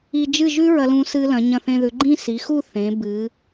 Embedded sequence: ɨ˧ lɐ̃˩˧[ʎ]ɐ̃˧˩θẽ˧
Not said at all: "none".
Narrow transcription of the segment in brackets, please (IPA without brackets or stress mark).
ɲ